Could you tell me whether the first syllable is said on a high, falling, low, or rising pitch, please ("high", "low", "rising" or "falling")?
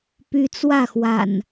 rising